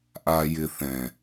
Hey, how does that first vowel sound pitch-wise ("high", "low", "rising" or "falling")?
low